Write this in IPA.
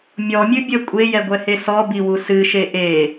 mʲ ɔ mʲ ɨ bʲ ə kʷʼ e j ɛ ɡʷ ɛ h e s ɔ b i w u s ɨ ʃ e ʔ e

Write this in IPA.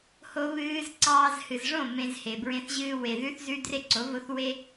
h o˦ β ɨː˦ z ǀ ɑː˧ z h ɨ˨ z ʐ õ˦˨ m ẽ˧ z h e˨ b ɹ ẽ˧ θ ʑ ɨː˧ w e˨ ð ʉ˦ θ z ʉ˦ d r e˦ ǀ o˨˦ v o˨˦ θ w e˦

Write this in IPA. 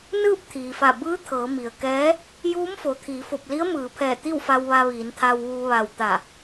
n ɯː˥˨ p̚ t̪ʰ iː˩ f a˧˩ b ɯː˧˥ t̪ʰ ɤː˩˧ m i˩ ə̯ k ɛː˧˥ | j uː˧˥ m f o˩ t̪ʰ iː˩˧ f o˧˩ p̚ l i˧˥ ə̯ m ɯː˩˧ pʰ ɛː˧˩ t̪ i˥˨ w f a˧ w ʋ a˧ ʋ iː˩˧ n t̪ʰ a˧ w ʋ uː˧ ʋ a˧˩ w t̪ a˧˩

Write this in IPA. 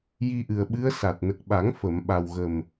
j i˧ ʔ ɨ˨˩ ə̯ ɓ ɨ˧˥ ə̯ s a˨˩ t̚ n ə˨˩ k̚ ɓ a˨˩˦ ŋ f ə˨˩˨ m ɓ a˨˩ w ɣ ə˨˩ m

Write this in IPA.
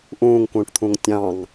ʔ ũː ŋ k ũː ʈ t̪ʰ ũ ŋ tʲ ɑ̃ ŋ

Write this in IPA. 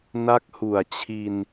n a˦˥ k̚ h u˨˩ a̯ t͡ɕʰ i˧ n

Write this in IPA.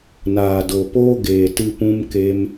n aː˨ d o˨ p oː˦ ɡ eː˨ t ɨ˧ p ũ˦ m k e˦ m

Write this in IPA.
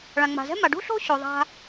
ɭ ã˩ ŋ͡m a̤˩ z ɛ̤˥ m a˩ ɖ ṳ˥ ɬ o̤˥ ɕ o˩ ðˤ a̤˧

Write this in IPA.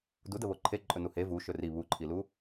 d u d ə β o ǃʰ e ǃʼ ɵ n u h e v u ʃ ɵ r i β u ǃʰ i l u

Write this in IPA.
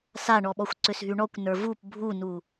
s a ɳ ɔ ɓ ɔ xʷ ǀ ʏ s ɦ y ɳ ɔ kʷ n ə˞ v u p bʱ u n u

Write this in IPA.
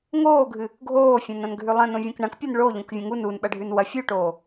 ŋ oː ɡʱ ɨ | ɡʱ oː fʲ ɐ̃ n ɐ̃ n ɡʱ ʉ lˠ ɐ̃ n õ vʲ õ k ɳ ɐ̃ k pʲ o n ɭ o ʎ õ k vʲ ɐ̃ ŋ u n u n ɓ ɐ ɖʱ ʉ n w ɐ fʲ u ʈ oː

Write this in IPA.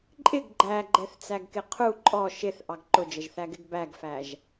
ǃʼ ɪ ɡ ɡ͡ǃ æ ɡ͡ǃ ɛ θ t͡s æ ɡ k ɪ qʰ u ǃʼ ɔ ʃ ɪ θ ʔ ɑ ɡ ǃ ʊ d͡ʒ ə ʒ θ æ ɡ ɪ ɡ b æ ɡ f æ ʒ

